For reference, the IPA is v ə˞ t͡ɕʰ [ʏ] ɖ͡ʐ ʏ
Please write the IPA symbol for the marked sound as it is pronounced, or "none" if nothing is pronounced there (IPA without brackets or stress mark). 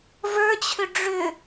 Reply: ʏ